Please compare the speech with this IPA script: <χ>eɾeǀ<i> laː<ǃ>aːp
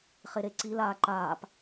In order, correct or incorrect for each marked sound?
correct, correct, correct

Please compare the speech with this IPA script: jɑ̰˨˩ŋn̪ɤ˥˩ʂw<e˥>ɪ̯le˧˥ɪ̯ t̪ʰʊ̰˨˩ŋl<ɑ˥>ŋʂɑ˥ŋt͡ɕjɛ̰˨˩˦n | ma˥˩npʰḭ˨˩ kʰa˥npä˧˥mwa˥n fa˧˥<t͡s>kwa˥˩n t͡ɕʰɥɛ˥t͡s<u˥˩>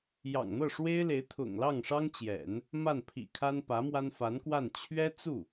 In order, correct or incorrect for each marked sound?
correct, incorrect: ɑ˥˩, incorrect: n, correct

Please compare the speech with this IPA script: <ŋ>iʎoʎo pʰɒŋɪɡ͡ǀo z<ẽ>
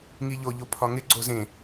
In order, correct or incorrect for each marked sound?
correct, correct

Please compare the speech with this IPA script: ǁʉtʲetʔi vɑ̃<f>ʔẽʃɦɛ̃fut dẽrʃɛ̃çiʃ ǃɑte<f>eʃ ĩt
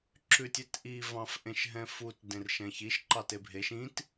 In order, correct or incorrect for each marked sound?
correct, incorrect: bʱ

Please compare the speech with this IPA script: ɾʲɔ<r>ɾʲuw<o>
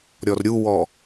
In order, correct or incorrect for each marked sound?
correct, incorrect: ɔ

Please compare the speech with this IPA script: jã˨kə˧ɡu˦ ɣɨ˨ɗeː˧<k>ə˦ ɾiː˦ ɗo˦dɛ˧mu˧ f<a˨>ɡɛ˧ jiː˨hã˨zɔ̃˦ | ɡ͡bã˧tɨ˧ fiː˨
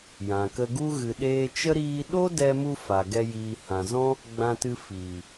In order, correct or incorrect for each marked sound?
incorrect: t͡ʃ, correct

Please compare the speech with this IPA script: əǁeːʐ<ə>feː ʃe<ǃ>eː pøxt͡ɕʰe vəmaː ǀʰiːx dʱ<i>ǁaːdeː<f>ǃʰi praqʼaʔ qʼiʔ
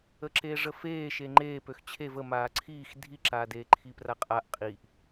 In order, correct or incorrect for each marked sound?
correct, incorrect: ŋ͡ǃ, correct, incorrect: none

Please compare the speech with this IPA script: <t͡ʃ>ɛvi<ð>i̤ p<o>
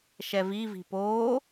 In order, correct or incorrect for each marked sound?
incorrect: ʃ, incorrect: v, correct

